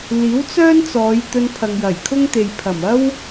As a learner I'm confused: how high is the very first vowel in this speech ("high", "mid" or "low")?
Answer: high